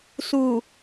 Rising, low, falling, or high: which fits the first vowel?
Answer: low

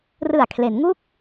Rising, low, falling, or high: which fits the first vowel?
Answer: low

